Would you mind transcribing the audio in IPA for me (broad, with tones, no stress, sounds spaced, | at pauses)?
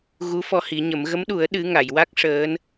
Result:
ɣ u˧˥ f ɔ˧ h i˨˩˦ ɲ ə˨˩˦ m ɣ ə˧˥ m ɗ u˨˩˦ ə̯ ɗ ɨ˧˥ ŋ a˨˩˨ j w a˦˥ k̚ ʂ əː˧˥ n